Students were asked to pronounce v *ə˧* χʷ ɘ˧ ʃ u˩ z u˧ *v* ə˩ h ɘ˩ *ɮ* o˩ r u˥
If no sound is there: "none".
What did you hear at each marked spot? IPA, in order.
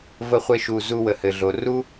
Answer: ə˧, w, ɮ

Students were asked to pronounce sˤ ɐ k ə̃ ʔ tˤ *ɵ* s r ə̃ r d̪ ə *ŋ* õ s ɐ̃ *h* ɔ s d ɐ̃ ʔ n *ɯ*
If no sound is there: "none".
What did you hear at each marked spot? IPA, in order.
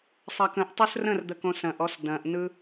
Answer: ɵ, k, ʔ, ɯ

